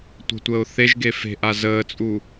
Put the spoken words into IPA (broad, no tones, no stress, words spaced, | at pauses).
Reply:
tʷə̤tʷəːʊ̯ θeʒɡe fe̤ʔa zəːt͡sʼu